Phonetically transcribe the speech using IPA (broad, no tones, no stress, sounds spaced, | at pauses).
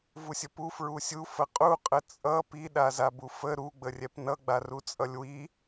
v u sʲ ə p u f ɹ u sʲ u f ə qʼ u qʼ ə t͡sʼ ʌ p i ɗ a z a b u f ə ɾ u ɡ͡b ə rʲ ɛ p n ʌ ɡ͡b a r u t͡sʼ ʌ lʲ w i